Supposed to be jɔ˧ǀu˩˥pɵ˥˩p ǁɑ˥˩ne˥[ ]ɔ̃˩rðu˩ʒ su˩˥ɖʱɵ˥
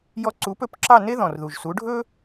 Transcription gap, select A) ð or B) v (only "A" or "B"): A